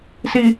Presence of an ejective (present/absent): absent